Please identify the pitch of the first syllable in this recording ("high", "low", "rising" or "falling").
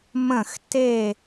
falling